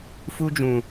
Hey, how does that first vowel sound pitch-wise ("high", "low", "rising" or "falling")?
high